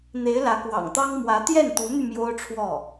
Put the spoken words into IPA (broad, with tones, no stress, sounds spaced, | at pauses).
n̪ e˧˥ ɪ̯ l ä˧˥ k w ɑ̰˨˩ ŋ t̪ ɑ˥ ŋ m w ä˧˥ t̪ j ɛ˥˩ n t̪ u˧˥ n̪ y˧ m j o˥ ʊ̯ ʈ͡ʂʰ w ɔ˥˩